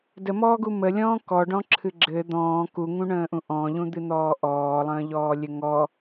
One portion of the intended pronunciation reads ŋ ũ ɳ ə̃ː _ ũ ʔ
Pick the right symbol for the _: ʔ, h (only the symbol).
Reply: ʔ